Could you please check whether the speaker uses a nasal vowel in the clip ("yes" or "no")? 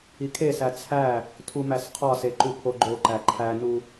no